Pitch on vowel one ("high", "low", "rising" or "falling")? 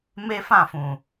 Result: high